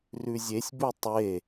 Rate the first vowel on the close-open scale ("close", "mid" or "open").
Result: close